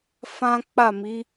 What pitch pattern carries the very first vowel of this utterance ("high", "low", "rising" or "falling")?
high